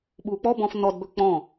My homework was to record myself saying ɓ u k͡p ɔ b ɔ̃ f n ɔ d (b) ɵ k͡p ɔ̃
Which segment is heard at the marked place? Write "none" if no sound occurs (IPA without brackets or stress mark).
b